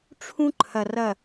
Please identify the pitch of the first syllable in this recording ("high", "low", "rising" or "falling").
high